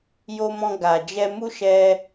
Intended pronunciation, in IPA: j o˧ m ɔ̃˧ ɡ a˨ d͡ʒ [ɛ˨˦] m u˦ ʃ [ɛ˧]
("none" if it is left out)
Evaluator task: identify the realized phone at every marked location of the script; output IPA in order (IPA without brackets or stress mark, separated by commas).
ɛ˧, ɛ˧